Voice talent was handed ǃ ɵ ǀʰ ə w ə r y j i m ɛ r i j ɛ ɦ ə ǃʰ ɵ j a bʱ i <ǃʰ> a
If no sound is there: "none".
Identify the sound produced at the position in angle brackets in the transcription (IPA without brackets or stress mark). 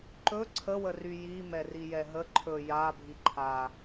ǃʰ